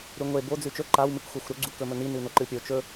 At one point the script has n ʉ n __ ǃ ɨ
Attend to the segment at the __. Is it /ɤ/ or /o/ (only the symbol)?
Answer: o